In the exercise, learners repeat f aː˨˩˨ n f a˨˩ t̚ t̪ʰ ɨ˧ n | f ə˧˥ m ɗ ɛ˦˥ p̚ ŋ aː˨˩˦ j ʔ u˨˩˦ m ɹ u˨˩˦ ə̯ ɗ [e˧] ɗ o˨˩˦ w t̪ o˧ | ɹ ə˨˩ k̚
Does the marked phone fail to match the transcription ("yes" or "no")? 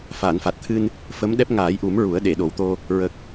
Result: yes